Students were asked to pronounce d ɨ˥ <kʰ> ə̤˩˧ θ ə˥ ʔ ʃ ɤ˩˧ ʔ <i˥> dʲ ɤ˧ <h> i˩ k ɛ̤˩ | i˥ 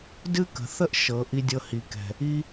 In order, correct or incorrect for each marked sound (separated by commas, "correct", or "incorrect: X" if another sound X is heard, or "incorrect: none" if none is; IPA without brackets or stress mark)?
incorrect: k, incorrect: i˧, correct